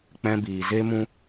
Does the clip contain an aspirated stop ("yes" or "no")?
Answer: no